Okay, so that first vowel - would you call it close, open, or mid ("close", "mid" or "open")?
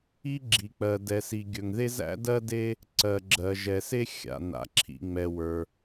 close